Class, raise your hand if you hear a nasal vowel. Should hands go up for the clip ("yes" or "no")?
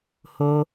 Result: no